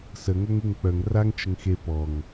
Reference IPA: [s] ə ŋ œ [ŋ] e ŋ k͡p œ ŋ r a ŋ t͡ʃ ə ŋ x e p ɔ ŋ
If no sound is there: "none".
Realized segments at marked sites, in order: s, ŋ

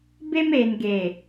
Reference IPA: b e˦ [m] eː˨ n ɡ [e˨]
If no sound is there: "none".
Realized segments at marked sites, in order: m, e˨

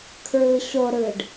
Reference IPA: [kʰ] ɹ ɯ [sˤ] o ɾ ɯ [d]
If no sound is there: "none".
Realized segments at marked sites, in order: kʰ, ɕ, ɖ

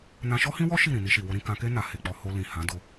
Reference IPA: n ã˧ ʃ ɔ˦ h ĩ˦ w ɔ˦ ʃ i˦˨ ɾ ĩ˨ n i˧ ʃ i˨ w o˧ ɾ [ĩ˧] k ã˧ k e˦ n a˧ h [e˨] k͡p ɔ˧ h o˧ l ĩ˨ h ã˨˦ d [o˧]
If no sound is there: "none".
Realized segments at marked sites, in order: ĩ˧, e˨, o˧

